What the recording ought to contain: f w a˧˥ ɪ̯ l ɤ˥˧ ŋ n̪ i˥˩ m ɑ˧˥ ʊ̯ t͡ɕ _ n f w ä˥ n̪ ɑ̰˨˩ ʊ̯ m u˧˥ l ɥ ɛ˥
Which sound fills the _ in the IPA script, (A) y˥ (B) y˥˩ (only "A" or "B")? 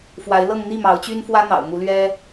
A